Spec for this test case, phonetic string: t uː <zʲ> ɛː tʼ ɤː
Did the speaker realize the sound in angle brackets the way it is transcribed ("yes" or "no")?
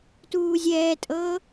yes